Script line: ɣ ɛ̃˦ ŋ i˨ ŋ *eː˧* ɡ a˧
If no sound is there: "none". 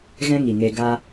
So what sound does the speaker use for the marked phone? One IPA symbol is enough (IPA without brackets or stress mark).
e˧